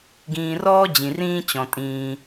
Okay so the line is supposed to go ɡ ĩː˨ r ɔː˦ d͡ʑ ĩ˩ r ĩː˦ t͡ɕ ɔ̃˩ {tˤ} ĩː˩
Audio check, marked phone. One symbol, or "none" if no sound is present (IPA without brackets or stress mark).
tʼ